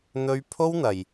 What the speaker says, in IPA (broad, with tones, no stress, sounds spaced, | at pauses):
n̪ ɵ˥ ɥ pʰ o˥ w n̪ ɐ˨ j